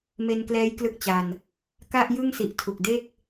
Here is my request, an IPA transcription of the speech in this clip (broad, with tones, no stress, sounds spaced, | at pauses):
m e˧ n k l ɛː˦˥ j k l ɯ˦˥ k̚ t͡ɕ a˧ n | k a˥˩ ʔ j ɯ˥˩ ŋ s i˨˩ ʔ tʰ u˨˩ k̚ d e˥˩ k̚